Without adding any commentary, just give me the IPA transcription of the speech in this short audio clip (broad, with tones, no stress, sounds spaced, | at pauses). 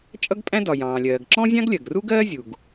t͡ʃʼ ʌ˥ ɡ pʼ æ̃˥ d ɒ˩ j ɑ̃ː˩ lʲ ɜː˩ ɡ ǁ ɔ̃˥ zʲ ɑ̃˥ ɡ lʲ ɜ˩ ɡ r u˥ ɡ ɜː˥ zʲ u˩ ɡ